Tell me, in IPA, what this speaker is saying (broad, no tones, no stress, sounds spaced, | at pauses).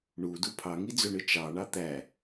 ɳ u d u pʰ ɑ ŋ i d͡z ø ɳ ɯ t͡ʃ ɑ ɳ ɑ t̪ æ